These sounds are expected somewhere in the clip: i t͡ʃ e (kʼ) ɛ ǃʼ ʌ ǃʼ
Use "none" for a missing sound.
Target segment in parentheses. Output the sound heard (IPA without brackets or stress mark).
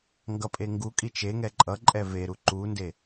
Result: ŋ